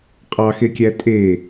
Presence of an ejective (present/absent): present